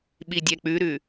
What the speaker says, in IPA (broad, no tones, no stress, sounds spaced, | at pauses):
ɓ i dʲ ɛ k͡p ʉ ɾ ʉ